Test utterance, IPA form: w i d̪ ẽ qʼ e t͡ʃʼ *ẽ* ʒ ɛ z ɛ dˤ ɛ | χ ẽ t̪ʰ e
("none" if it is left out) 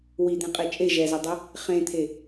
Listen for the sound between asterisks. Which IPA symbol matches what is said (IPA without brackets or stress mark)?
e